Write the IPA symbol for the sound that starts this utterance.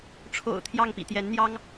ʈ͡ʂʰ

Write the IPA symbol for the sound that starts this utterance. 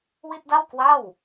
w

